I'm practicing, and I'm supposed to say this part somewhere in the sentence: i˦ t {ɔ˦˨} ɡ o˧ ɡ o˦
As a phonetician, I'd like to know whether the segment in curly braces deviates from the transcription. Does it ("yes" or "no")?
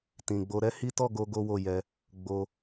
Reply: no